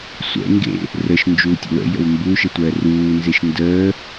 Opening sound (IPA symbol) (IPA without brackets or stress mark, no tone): sʷ